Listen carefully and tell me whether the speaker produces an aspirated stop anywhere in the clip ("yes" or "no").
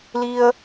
no